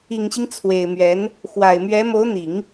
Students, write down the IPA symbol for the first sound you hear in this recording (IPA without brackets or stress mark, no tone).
i